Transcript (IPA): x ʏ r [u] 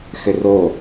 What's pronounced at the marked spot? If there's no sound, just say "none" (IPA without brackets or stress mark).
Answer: o